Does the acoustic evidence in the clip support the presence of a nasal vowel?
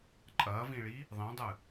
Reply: yes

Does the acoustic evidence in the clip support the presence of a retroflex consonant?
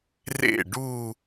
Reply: yes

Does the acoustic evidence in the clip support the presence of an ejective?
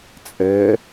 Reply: yes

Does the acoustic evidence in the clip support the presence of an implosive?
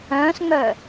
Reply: no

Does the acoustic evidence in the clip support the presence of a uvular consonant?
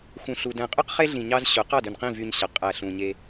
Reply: yes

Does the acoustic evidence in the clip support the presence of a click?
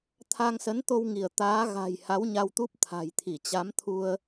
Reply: no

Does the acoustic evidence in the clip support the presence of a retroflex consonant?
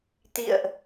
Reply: no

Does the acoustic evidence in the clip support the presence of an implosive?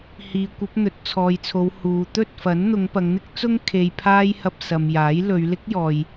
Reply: no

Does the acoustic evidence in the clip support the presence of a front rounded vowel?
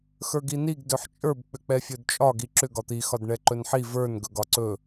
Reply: yes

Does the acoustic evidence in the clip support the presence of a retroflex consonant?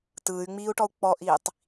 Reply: yes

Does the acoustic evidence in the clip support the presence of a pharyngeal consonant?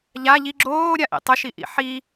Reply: yes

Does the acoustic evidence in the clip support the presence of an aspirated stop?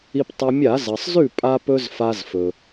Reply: no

